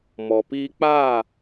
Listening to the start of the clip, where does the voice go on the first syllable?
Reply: low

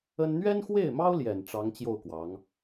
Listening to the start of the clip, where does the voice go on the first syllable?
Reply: high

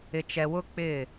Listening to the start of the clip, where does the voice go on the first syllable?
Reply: low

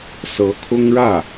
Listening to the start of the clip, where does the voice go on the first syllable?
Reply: rising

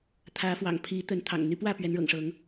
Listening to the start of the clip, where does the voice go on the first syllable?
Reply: rising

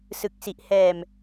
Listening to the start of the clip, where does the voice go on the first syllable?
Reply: low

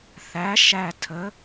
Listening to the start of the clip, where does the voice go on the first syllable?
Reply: rising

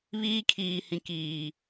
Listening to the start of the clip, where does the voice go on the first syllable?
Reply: high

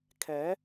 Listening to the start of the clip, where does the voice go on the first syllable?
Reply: rising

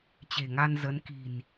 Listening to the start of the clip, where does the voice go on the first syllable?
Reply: low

